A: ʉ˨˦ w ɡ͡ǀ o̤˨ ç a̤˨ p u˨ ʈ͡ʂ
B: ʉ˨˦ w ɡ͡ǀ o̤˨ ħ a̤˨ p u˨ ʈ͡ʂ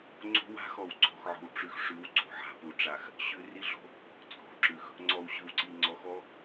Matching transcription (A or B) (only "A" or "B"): B